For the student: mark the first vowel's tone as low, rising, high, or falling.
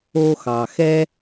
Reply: high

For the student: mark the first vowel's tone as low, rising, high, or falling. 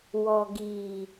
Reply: low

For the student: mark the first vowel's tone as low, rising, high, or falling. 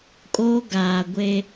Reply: high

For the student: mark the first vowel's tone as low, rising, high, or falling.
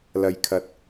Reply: low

